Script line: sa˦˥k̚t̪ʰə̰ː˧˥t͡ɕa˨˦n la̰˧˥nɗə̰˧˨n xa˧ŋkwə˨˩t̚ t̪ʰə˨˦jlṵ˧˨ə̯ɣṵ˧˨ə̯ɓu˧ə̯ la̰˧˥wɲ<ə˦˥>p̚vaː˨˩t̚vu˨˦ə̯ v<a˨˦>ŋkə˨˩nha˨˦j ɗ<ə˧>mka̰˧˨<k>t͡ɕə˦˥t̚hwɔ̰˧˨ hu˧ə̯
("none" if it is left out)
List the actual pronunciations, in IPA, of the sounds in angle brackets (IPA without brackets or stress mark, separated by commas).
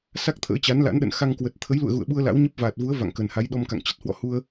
ə˦˥, a̰˧˨, ɔ˧, ŋ